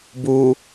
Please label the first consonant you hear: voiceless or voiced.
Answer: voiced